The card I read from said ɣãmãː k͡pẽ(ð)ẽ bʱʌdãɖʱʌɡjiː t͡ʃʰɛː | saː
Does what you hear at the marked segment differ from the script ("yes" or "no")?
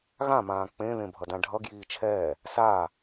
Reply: no